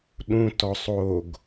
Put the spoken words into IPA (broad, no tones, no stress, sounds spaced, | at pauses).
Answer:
ɗ ũ t ɔ sˤ o ɡ